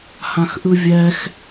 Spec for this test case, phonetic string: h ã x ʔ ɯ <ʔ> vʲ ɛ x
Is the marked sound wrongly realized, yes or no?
yes